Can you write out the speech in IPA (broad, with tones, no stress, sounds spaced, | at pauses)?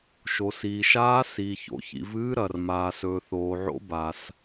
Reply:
ʃ o˩ s iː˩ ʃ aː˨˦ s iː˩ ç o̰˩ ç ḭ˩ v ɨː˨˦ ɾ ɐ˩ r m aː˩ s ɵː˩ θ oː˩ ʕ o̰˨˦ b a˩ s